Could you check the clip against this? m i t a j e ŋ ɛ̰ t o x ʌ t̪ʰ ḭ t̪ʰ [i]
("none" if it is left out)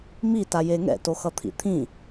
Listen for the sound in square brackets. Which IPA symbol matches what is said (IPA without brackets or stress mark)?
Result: ĩ